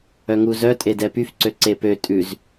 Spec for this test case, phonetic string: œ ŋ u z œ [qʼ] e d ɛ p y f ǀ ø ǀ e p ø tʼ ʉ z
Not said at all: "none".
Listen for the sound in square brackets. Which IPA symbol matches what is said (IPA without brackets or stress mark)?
tʼ